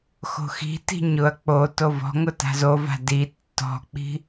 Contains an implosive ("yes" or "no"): no